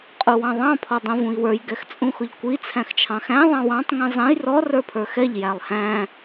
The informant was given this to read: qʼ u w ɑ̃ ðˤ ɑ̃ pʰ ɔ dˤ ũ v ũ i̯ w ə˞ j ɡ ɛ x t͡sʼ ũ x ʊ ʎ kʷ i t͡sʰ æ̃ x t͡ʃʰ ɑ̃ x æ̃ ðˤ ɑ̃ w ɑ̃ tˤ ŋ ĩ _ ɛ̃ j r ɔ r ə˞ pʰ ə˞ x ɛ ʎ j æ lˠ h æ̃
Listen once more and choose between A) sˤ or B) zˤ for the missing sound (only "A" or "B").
B